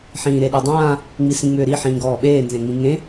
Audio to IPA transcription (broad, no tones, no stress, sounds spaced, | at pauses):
ħ ĩː ɾ e ɗ e dˤ ãː | ŋ͡m i s ĩ ŋ͡m ʏː ɾ i ħ ĩː ɡ ɔː ɓ eː n z ẽ ŋ͡m ĩ ŋ ẽ